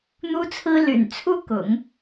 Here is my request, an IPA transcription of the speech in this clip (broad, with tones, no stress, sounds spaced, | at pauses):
n̪ u˥ t͡sʰ ɹ̩˥ l y̰˨˩ n t͡sʰ u˥ k ʊ̰˨˩˦ ŋ